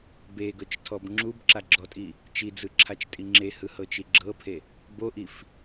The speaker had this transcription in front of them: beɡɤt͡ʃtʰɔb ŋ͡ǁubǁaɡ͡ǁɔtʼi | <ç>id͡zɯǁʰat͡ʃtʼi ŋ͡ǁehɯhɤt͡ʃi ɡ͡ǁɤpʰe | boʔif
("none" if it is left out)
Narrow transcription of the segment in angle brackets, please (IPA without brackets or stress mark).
t͡ʃ